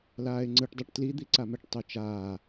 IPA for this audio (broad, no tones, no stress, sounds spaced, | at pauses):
l aː ɪ̯ ŋ͡ǀ ɯ ʈ dˤ ɛ ʈ t l i d̪ i ǀ a m ɛ ʈ tˤ u t͡ʃ aː